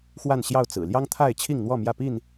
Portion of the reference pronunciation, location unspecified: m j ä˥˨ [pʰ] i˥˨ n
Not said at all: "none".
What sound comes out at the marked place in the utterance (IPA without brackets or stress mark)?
p